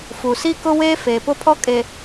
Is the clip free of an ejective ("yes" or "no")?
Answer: no